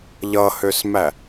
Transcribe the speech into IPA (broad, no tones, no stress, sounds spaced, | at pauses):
ʎ ʌ h ø s m æ